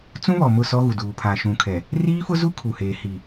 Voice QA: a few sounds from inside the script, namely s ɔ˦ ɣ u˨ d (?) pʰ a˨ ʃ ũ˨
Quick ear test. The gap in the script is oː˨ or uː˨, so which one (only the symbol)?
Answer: uː˨